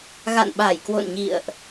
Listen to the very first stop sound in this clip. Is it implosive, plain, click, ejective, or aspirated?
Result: implosive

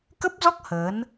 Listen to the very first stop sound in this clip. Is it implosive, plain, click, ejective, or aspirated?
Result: plain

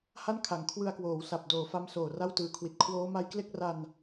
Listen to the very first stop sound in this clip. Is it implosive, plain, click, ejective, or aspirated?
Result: aspirated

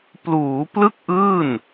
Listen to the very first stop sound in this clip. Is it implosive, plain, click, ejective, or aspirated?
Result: plain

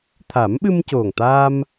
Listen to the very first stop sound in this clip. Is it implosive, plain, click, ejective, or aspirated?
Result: aspirated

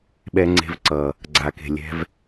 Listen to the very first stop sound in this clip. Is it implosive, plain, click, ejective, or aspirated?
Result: implosive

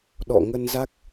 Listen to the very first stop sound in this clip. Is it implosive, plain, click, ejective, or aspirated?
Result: implosive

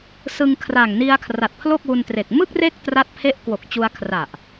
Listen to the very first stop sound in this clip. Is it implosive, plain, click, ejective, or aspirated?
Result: aspirated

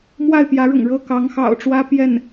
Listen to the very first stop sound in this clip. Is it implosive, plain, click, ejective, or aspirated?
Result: plain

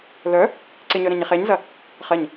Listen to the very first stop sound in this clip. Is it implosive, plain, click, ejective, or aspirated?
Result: click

